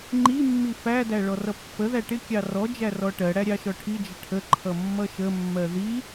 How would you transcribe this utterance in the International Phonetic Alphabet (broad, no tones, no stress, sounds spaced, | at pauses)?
ŋ͡ǃ i mː i f æ d æ ɭ ɔ r ʌ pː ə ð æ ʈ ɪ kʲ ɑ r ɔ d͡ʒ æ r ɔ ʈ ɜ ɽ æ ɾʲ ɑ ʃ ɔ ʈʰ i d͡ʒ ə ʈʰ ə ǃʰ ʌ mː ʌ ʃ ə mː ɜ ð i